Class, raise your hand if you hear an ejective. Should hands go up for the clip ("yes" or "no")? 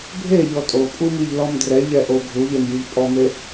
yes